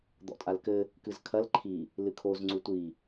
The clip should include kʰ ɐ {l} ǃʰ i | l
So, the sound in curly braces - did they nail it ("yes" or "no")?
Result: yes